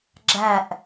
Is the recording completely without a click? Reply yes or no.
no